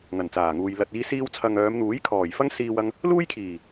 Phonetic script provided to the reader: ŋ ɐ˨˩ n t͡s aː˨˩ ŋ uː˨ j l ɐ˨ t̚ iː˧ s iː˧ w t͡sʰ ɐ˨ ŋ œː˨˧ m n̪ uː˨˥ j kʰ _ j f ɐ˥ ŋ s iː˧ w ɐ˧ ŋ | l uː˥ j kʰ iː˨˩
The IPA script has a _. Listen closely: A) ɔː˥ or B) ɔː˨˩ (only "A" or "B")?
B